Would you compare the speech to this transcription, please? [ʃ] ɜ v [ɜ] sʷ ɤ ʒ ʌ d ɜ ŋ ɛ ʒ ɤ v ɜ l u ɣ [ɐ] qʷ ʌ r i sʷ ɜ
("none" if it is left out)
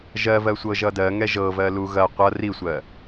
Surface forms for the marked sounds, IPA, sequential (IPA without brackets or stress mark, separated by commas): ʒ, ɜ, ɐ